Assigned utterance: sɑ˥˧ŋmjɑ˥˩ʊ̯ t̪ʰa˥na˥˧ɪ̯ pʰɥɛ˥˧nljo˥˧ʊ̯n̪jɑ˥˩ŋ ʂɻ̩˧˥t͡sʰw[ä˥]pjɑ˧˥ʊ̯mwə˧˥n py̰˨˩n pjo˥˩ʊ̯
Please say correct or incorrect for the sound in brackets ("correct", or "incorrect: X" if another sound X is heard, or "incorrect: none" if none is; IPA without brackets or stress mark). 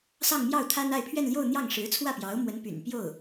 incorrect: ä˥˩